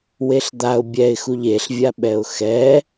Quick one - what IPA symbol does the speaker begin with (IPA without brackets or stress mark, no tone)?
w